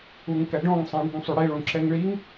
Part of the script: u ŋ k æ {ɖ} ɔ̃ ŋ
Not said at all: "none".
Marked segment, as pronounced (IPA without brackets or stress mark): ɖ